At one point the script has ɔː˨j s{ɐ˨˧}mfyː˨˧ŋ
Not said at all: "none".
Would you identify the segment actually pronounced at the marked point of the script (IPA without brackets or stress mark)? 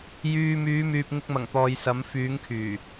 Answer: ɐ˨˧